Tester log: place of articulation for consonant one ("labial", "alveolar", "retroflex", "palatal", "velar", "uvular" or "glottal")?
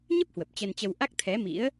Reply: palatal